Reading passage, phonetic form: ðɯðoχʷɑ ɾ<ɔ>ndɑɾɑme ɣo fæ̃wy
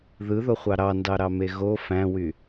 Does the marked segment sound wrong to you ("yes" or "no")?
yes